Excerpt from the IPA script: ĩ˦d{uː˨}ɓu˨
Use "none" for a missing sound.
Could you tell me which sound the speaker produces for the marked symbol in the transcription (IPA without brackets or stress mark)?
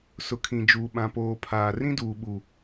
uː˨